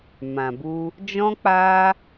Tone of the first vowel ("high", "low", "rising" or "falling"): low